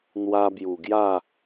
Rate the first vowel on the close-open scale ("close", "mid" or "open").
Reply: open